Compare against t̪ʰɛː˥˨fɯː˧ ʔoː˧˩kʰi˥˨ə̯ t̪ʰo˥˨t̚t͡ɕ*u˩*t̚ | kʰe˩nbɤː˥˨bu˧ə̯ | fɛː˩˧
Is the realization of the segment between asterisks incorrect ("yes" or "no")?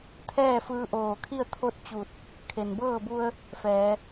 yes